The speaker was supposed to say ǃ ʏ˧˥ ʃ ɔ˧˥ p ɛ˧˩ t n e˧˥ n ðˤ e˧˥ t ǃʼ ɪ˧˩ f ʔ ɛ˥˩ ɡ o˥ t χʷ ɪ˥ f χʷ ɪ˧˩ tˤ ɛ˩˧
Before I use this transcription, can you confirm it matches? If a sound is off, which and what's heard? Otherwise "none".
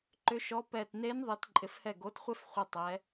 ʔ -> h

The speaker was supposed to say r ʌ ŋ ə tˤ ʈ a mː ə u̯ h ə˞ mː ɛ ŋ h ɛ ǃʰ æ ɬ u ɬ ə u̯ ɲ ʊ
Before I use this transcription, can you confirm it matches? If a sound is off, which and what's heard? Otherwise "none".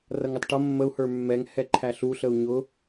a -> ʌ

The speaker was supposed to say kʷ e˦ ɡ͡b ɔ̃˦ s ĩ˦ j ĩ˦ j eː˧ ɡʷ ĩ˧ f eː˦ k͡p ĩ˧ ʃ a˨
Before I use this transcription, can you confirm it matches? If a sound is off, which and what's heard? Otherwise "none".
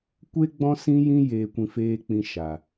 ɡʷ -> kʷ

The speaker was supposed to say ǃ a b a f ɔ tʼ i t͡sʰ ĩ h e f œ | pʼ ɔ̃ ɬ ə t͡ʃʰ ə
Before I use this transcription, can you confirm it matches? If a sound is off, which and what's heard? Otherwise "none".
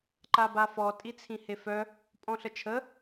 none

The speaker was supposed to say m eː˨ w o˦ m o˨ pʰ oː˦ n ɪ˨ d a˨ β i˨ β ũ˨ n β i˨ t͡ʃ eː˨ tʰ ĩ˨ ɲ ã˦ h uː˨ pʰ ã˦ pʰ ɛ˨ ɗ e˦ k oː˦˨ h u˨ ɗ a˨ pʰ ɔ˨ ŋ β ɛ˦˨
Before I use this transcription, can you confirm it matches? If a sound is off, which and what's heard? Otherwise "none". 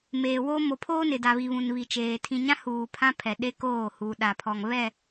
none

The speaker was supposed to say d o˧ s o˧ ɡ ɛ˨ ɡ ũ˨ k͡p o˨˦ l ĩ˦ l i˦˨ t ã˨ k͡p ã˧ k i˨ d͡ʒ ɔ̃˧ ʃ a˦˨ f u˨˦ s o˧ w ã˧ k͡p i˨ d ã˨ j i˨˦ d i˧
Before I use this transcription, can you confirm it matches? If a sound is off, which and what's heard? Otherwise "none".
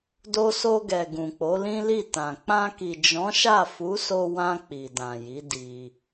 ɔ̃˧ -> ɔ̃˨˦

